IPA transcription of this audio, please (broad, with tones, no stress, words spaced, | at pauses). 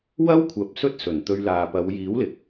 wɐ˥wkʷʰɐ˨p̚ sɵ˥t̚sɵ˨˩nt̪ɵ˧ɥlaː˨ pɐ˨˧w jiː˨˥wlɪ˨k̚